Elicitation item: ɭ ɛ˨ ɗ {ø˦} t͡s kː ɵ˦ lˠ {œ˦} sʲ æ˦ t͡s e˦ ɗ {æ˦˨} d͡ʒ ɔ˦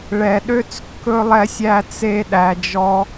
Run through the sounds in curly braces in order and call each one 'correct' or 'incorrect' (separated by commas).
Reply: correct, incorrect, incorrect